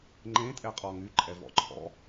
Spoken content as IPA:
ŋ͡ǃ ẽ tʼ ɛ qʼ ɔ ŋ y ǃʼ ɛ v ɔ̰ ǃʰ ɔ̰

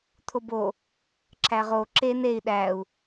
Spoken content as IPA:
t̪ʰ o b o | ǁʰ æ ʁ o ǁ e n e i̯ ɗ æ u̯

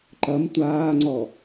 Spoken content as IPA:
ǃ ɐ m tʷ aː ŋ͡ǀ ɔ

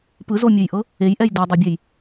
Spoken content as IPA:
p ɯ z o mʲ ɯ j ʔ ɤ | e j ʔ ɛ j d ɛ dˤ o bʲ ɛ j

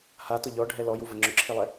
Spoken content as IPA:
h a t ʊ ʎ ɔ ɖʱ ɛ l ɔ j u v ə ŋ͡ǁ ʊ ǁʰ i lˠ ɛ

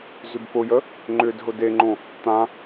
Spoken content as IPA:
z ʏ b p ʊ j ə | ŋ͡ǃ ʏː d ɦ ʊ d e ŋ͡ǃ õ | t̪ ã

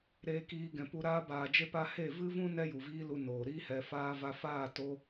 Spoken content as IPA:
ɾ eː˧ k iː˧ ɡ ɛ̃˨ p u˧ ɾ aː˧ b aː˨ d͡ʒ e˧ p a˧ h e˦˨ v ɨ˦ v ũ˦ n ɛ˦ j u˨ v iː˦ l u˧ n oː˨ ɾ iː˦ h ɛ˧ f aː˧ v a˧ f aː˦˨ t o˦

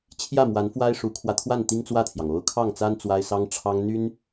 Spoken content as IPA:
t͡ɕʰ j ä˥˩ m w a˧˥ n f w a˥ ɪ̯ ʂ u˧˥ kʰ w ä˧ t̪ʰ w a˥˩ n t̪ i˥ ŋ t͡s w ä˥˩ t̪ʰ j ɑ˩ ŋ o˧˥ ʊ̯ kʰ ɑ˥˩ ŋ t͡s a˥ n t͡s w a˥ ɪ̯ s ɑ˥ ŋ ʈ͡ʂʰ ɑ˥ ŋ n̪ y˥ n

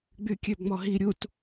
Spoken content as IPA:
ɡ͡b y kʲ ø b ŋ͡m ɔ ɦ i ɾʲ u t

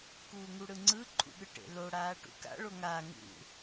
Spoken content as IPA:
k uː ŋ u ɽ ɯ ŋ͡ǀ ɯ ǃʰ ṵ ɠ ɯ ʈ ḛ l o ɽ aː ʈ ṵ k a̰ ɭ o ŋ aː ŋ ṵ

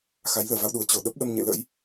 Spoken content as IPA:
x a˨˦ j l əː˧˩ v a˧ w ɗ u˨˩ ə̯ t͡ɕ o˧˩ ɗ ə˦˥ p̚ ɗ ə˧ m ɲ ḛ˧˨ l ə̰˧˥ j

